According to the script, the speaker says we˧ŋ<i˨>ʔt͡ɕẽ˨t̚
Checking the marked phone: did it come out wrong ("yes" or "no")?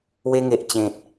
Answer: yes